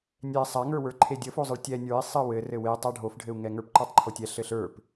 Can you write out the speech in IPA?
nʲɛ sˤaŋə˞wə˞ ǃʰedʲəfozˤəɭ tʲɛ nʲə˞i̯ sˤɘwɘ rɘwe tˤaɖʱofɖʱɘu̯ŋɛ ŋə˞pǃə˞tˤǃʰotʲɛ ɬɘɬə˞p

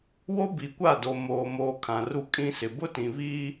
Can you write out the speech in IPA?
wo˦bi˨kʷa˦˨do˨ moː˨ moː˦ kʰã˨ru˦ kʼĩ˦sɪ˨ bʊ˦tĩ˨βiː˦

